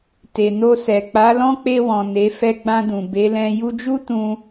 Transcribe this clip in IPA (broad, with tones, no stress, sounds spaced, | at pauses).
t e˨ n o˧ s ɛ˨ k͡p a˨˦ l ɔ̃˦ k͡p e˧ w ɔ̃˨ n e˨˦ f ɛ˧ ɡ͡b ã˧ d ũ˨ b e˨˦ l ɛ̃˧ j u˧ d͡ʒ u˦ t ũ˧